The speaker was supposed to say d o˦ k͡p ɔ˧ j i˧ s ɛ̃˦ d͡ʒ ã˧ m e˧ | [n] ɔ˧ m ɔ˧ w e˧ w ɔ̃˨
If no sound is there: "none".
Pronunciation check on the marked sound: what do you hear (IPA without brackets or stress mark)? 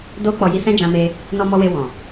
n